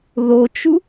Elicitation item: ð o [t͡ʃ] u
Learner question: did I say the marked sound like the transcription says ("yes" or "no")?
yes